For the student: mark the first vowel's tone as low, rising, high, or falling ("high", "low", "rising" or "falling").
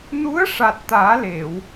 rising